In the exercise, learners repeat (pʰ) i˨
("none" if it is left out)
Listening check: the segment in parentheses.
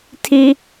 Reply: tʰ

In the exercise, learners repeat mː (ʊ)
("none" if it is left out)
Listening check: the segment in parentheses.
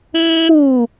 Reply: u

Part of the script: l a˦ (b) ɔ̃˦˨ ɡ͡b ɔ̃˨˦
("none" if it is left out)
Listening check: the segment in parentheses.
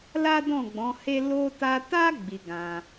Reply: d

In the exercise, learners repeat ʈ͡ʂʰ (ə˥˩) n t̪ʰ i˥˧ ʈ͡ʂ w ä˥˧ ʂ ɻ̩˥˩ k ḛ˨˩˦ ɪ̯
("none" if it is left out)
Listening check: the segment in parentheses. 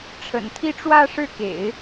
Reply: ə̰˨˩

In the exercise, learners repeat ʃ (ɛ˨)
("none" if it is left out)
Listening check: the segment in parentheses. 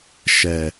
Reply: ɛ˨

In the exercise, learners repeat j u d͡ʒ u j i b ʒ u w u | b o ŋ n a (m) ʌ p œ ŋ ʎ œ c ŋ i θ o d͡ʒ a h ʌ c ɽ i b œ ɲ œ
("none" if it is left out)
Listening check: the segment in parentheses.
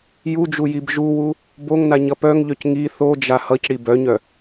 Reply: ɲ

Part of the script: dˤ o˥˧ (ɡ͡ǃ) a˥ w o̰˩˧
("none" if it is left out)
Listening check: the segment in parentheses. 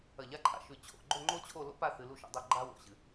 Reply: ɡ͡ǃ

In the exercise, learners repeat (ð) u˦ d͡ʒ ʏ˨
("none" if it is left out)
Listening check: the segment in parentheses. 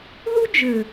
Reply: ð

